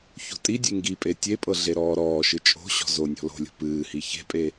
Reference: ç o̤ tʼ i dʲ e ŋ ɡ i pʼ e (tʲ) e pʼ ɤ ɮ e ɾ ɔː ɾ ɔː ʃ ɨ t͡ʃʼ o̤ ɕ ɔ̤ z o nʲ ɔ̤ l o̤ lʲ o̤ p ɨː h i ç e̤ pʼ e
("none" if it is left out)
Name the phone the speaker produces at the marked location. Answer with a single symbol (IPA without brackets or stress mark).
tʲ